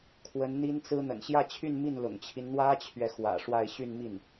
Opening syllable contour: rising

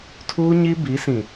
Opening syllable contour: high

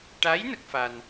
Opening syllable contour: rising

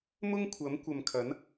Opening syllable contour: high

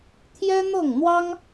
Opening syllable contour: high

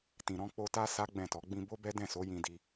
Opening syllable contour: low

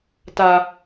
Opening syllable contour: high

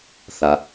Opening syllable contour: low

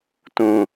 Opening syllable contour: falling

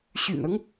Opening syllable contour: low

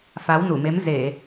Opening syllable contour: rising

